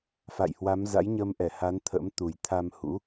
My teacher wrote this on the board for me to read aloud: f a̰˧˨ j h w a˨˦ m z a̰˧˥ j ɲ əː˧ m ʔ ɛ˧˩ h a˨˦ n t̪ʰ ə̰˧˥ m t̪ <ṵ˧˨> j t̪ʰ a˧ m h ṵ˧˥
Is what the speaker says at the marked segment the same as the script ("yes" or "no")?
no